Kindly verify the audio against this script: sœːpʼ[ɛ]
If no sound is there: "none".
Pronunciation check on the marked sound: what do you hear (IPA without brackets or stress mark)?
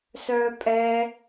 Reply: ɛ